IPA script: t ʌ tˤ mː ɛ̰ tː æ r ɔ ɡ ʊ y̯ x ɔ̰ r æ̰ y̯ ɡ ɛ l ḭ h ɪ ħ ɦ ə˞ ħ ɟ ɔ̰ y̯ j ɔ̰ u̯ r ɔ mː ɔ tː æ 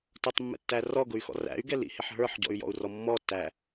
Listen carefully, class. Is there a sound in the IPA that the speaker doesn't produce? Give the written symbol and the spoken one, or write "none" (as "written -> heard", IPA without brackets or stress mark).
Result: none